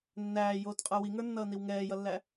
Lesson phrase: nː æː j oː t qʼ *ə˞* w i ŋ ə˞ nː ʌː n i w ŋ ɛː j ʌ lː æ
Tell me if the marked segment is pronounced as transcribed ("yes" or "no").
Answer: yes